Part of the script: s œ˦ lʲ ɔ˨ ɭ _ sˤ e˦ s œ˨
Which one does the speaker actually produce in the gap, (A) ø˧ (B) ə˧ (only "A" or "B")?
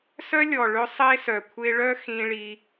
A